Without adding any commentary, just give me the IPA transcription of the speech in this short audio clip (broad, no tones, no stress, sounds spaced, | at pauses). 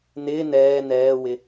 n ɪː n ɛː n ɛː w ɪ